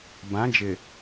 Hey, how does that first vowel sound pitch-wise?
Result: rising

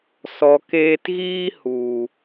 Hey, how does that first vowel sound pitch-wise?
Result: low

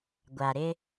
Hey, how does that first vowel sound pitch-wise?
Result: low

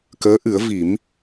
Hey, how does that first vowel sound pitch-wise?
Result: rising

